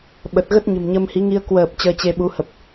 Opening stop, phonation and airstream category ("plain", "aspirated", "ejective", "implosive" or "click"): implosive